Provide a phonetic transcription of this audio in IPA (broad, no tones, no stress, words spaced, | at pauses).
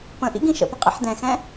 pə̃ʔḭ ɡĩʃə̰pə̃ qʼḭħdɛ̃xɛ̃